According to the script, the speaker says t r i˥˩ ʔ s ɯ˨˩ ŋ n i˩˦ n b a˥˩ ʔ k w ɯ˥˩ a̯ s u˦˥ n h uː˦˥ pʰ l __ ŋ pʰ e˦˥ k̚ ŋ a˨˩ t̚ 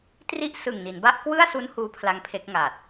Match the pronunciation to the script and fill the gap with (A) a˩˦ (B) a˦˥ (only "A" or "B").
B